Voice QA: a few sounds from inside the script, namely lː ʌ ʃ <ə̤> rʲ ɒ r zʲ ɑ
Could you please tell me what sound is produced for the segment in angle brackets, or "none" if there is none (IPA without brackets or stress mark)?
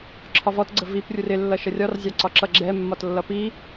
ə